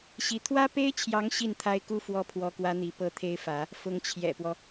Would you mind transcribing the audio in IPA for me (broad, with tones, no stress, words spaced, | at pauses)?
ɕi˧˥ t̪ʰwä˥pe˥ɪ̯t͡ɕʰjɑ˧˥ŋ ɕi˥˩nt̪ʰa˥ɪ̯ku˥ fwɔ˥˩pʰwɔ˥kwä˥n̪i˧˥ pɤ˥˩t̪ʰe˥ɪ̯fä˧˥ | fʊ˧˥ŋt͡ɕʰjɛ̰˨˩pwɔ˦